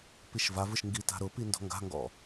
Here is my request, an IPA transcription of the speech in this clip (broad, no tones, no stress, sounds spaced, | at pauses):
p i ʃ v a v ɯ ʃ ŋ ɡ i t a̤ ɾ ʊ p i n d ɔ̤ ŋ ɡ a̤ ŋ ɡ ɔ̰